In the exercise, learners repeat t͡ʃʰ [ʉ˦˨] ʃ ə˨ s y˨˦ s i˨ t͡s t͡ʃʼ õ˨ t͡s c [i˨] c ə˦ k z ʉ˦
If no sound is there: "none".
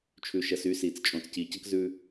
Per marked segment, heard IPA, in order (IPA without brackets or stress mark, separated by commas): ʉ˨, i˨